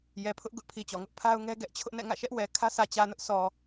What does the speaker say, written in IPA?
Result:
j ɛ˨ pʰ ʊ˦ ʔ ɡ ʊ˦ ʔ pʰ i˨ t͡ɕ ɔ˨ ŋ ʊ˦ ʔ pʰ a˦ ʊ̯ ŋ ɛ˦ ɡ ɛ˦ ʔ t͡ɕʰ ʊ˦ ʔ n ɛ̰˦˨ ŋ ä̰˦˨ ʃ ɛ˦ ʔ w ɛ˨ kʰ ä˦ s ä˨ t͡ɕ ä˨ n ʊ˦ ʔ sʰ ɔ˨

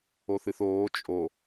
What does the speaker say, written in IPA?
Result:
o θ ɨ θ oː t͡ʃʼ o

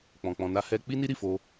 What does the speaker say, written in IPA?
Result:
k͡p ɔ̃˧ k͡p ɔ̃˧ n a˦ h ɛ˦ k͡p i˦ n i˦ ɾ i˦˨ f o˧

